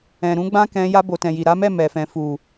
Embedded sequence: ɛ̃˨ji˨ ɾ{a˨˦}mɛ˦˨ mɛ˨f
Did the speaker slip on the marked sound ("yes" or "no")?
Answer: no